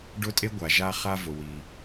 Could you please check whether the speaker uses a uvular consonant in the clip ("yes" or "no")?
yes